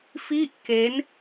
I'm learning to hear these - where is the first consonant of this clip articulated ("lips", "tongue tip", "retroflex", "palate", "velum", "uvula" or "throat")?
lips